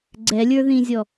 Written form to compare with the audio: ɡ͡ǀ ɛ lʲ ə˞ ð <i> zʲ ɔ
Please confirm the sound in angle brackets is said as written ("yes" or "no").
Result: no